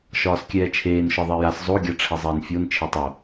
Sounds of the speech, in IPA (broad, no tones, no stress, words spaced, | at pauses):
ʃɒːskʲɛːt͡ʃʰeːn ʃɒðˤɛjas zˤo ɡʲaʈ͡ʂʰɛzˤɛːnfʲon t͡ʃʰetˤo